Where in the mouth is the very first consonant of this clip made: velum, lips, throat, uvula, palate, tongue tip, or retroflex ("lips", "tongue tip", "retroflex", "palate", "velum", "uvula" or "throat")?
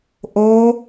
throat